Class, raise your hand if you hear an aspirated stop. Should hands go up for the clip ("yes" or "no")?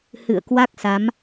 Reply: no